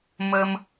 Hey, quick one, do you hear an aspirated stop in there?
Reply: no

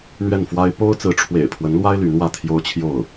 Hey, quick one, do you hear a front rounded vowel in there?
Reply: yes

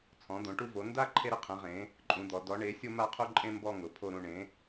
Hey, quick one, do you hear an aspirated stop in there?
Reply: yes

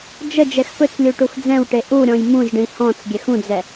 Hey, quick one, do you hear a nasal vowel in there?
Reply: yes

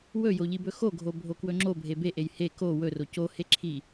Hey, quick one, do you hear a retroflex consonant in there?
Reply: no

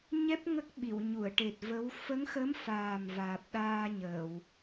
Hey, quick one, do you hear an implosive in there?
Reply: yes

